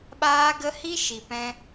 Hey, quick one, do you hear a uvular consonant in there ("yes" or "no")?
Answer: no